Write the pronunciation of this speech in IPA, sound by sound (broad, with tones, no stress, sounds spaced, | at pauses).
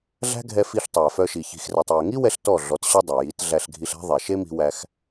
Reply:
ɮ æ̤˦ ɡʱ ɛ˧ f i˧ ɬ tˤ æ˨ f œ˧ ʃ i˨ ç i̤˨ x r ɛ˨ tˤ j ɛ˨ ŋ i˦ w ɛ˧ ɬ t ɔ˦˨ ɮ ɔ˨˦ t ɕ œ˦ dˤ ɛ˨ j i˨˦ t ɮ æ˧ ɬ ɡʱ i˧ ɬ æ̤˦ ðˤ ɛ˨ ʃ e˦ m i̤˧ w æ˧ x